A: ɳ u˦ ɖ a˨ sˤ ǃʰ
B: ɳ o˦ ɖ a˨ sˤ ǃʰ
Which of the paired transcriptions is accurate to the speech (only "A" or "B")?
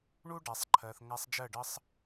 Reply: A